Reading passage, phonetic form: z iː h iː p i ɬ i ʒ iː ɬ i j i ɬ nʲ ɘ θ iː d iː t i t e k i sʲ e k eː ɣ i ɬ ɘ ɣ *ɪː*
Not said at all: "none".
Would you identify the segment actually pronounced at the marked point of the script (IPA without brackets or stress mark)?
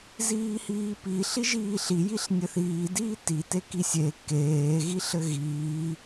iː